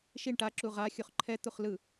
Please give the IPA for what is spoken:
ʃiɳ ʈaǁu ʁa xʲuχǃʰɛ t̪uχlɯ

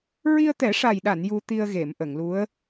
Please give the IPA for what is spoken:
ɹi˧ə̯t̪ɛ˨˩˦ʂa˨˩jɗa˨˩˨n ju˧t̪i˧ə̯ ɣe˨˩˨mʔə˨˩˨ŋlu˧˥ə̯

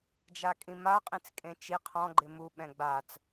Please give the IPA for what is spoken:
d͡ʒakʼĩma qʼĩt͡skʼẽt͡ʃi qʰɔ̃ɡ͡ǃɪ mu ɓɛ̃ɡ͡bat͡s

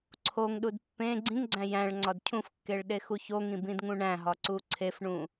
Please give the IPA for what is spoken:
ǀʰoŋɗud pːẽ ɡ͡ǀĩŋɡ͡ǀæ̃ jæ̃ɭ ŋ͡ǀɒdcʰũfkːeɭ ɗexuçoŋĩ bĩdŋũɳæ̃ɦɒ ǀuǀʰefɳũ

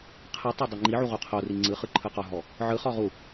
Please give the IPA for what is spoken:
qʰɯtˤo dˤeŋ͡ǃiʕu ʁuqʰori ŋ͡ǀɯχɯ ǃʰɯqɔɦɔ | ʕɯχɔ ʁu

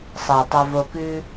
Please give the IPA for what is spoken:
sˤɤ˨tˤa˧vo˧kʉ˦

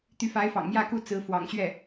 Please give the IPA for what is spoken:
t̪y˧˥fa˧˥ɪ̯fɑ̰˨˩ŋ mjä˥˧ku˥˩ t͡sɹ̩˧˥ fwɑ̰˨˩ŋɕɥɛ˥˩

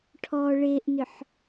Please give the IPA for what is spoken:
ʈʰɔ ɭeʔnʏħ

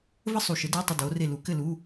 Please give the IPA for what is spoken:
və˥sˤu˨ʃə˨˥dɘː˧˥˧ tˤə˥˨doː˨˥re˥˨ lu˨˩˦kɘ˥˨lu˧˥˧

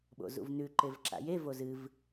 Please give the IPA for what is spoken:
ɓo̰zṵvnʉ ǃevǁa̰je vozɨv

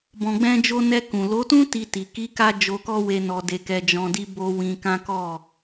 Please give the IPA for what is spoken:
bɔ̃˨ɡ͡bɛ̃˧d͡ʒo˧nɛ˧ kũ˨ lo˨˦tũ˦ ti˧ti˨ ki˨˦ka˧ d͡ʒo˧kɔ˦we˧ nɔ˧de˧kɛ˧ d͡ʒɔ̃˧di˦ bo˦ wĩ˧kã˦ kɔ˦˨

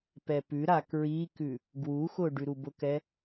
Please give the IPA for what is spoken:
pɛpʉɾa kɹikʉ | ɡwuxʊ ɖʉɾubʊkɛ

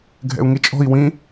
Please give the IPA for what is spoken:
ɡʱɛ̰u̯ŋit͡ʃʼɔ̤i̯ wĩ

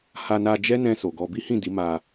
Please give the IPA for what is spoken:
ha˧na˧d͡ʒɛ˦nɛ̃˧ so˨ɡɔ˧ bi˦hĩ˦˨di˨˦ ma˧

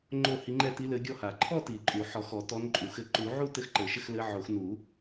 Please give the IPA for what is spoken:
ŋ͡ǃo˥˧hi˧˥ŋ͡ǃɛ˥˧ ti˧˥ lɘ˧˥ɡʲɔ˥˧ha˨˩˦ ǃʰɔ˥˧ ti˨˩˦ǃʼu˨˩˦ ħɔ˨˩˦xɔ˨˩˦ tɔ˧˥nǃʼu˨˩˦ xɘ˧˥ ǃu˨˩˦ʕu˥˧ tɘ˥˧xǃɘ˨˩˦ʃɘ˥˧xlɘ˧˥ ʕo˨˩˦x nu˨˩˦

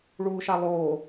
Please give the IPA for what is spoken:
ɭuːʃalˠoː

